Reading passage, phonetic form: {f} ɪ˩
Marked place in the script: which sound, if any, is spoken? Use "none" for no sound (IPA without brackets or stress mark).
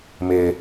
m